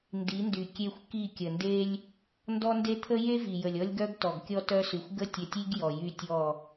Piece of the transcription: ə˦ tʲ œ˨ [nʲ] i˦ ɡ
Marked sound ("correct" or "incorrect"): incorrect